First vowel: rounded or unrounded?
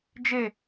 unrounded